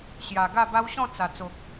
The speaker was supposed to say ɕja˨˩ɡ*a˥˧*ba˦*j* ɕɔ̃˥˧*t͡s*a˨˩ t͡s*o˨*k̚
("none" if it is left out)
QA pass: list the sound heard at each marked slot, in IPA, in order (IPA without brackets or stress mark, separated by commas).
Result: a˥˧, w, t͡s, o˨